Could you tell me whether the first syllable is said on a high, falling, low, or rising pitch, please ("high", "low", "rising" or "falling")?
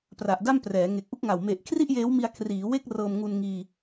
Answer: low